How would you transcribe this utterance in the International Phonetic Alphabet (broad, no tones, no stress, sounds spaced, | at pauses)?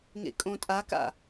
ŋ ḛ kʼ õ tʼ a k a̰